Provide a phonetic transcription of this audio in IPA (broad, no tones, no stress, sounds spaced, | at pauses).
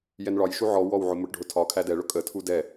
j ɛ n ɭ ɒ j ʃ u ʕ ɔ w ɔ w ʕ ʊ m ʊ ʈ ɖʱ ʊ tʰ ɒ kʰ æ d ɛ ɭ ʊ kʼ ə tʰ u d ɛ